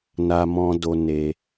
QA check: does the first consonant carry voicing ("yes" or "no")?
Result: yes